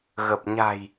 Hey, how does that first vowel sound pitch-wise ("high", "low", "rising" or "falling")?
low